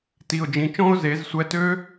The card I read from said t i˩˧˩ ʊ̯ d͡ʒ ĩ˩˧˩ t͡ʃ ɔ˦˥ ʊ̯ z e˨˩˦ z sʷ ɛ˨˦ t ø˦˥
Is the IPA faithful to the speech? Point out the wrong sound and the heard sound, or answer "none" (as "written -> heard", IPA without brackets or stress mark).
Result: ɔ˦˥ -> ɔ̃˦˥